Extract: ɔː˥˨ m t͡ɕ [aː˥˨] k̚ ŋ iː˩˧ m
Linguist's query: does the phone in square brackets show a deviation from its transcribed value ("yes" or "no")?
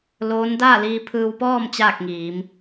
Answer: no